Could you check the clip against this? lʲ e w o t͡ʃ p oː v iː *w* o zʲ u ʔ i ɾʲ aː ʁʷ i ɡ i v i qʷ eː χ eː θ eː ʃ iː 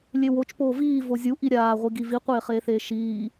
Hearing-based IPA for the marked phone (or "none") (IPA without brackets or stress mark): v